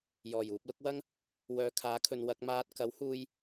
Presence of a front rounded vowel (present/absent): present